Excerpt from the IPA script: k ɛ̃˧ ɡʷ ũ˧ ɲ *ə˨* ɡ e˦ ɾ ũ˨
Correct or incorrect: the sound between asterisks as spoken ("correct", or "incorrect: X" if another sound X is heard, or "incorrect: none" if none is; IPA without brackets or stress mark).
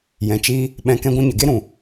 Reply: correct